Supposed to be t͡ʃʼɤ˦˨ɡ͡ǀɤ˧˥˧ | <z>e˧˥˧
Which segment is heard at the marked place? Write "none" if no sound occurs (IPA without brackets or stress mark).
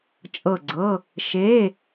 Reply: ʃ